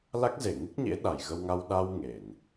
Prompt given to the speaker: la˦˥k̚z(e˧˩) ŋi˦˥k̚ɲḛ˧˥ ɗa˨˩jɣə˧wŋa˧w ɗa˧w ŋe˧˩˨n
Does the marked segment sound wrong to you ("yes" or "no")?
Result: no